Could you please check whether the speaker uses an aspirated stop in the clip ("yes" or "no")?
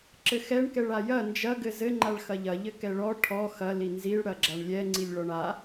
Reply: yes